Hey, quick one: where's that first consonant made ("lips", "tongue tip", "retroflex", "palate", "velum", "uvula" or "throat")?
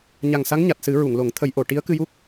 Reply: palate